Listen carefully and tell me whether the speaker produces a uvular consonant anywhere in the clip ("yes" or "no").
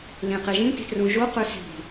yes